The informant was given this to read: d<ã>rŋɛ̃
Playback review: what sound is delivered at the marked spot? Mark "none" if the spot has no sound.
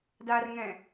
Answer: a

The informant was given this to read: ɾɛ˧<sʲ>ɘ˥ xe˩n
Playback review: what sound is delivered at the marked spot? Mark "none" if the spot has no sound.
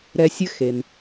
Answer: sʲ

